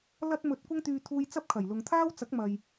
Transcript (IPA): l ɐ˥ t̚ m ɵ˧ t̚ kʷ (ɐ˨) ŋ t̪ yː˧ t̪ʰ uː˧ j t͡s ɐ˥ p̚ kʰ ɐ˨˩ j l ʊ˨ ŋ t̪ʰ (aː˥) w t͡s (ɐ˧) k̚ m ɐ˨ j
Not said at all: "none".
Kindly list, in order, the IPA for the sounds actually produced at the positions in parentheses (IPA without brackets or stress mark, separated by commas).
ɐ˥, aː˥, ɐ˨˥